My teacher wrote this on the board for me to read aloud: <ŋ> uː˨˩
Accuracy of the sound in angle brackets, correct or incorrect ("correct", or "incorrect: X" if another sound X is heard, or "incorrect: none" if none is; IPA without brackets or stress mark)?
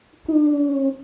incorrect: k